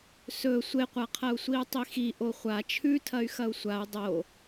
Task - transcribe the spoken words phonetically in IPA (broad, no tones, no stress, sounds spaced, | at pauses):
s ɵ sʷ e qʷ a qʰ ɐ u̯ sʷ i u̯ tˤ i x i ʔ o χʷ a t͡ʃʰ ʉ tʰ ɐ y̯ x ɐ u̯ sʷ a u̯ dˤ o